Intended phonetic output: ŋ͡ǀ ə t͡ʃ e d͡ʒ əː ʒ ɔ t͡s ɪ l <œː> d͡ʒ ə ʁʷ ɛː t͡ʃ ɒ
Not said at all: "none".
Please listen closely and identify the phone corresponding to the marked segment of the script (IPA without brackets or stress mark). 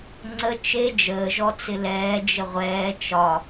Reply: ɛː